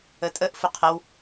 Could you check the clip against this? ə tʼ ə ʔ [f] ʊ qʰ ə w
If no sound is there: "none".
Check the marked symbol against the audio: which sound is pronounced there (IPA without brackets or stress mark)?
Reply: f